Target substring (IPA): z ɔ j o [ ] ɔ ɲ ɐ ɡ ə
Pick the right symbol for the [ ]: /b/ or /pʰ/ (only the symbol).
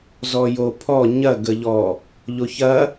pʰ